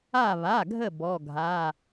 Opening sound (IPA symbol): a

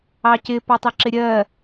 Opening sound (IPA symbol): ɑ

